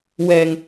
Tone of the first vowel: low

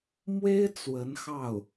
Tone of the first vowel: high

